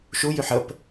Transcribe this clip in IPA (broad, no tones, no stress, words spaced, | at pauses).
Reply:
ʃujyħ əp